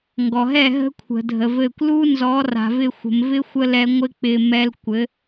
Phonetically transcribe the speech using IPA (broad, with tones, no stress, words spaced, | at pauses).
ŋɡɔ˨ɦɛ˦˨ ɦə̤˦kʷʰə̤˨ dʱə˨vɘ˦˨kʷ lu˦nzɔ˨˦ra̤˨vɪ˦˨ xʷə̤˨mvɪ˦ xʷə˦lɛ˧ŋʷɪ˦ k͡pɪ˧ mɛ˦l kʷɘ˨˦